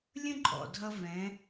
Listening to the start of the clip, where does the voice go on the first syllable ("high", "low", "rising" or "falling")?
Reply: high